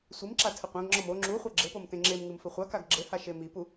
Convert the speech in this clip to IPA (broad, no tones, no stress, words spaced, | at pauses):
sʷimǁa tʰɘqʷãɡŋ͡ǁɔm o ŋ͡ǁuχʷɐ ɡ͡ǁɘpom tẽŋ͡ǁemŋɨm fɘχʷakaɡ ɡ͡ǁɘha ʃemipu